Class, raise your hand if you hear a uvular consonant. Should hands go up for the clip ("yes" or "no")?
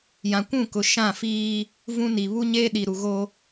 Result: no